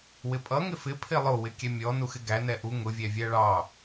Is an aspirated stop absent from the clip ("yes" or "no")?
no